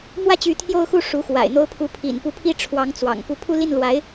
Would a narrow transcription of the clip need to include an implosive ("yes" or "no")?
no